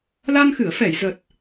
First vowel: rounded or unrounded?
unrounded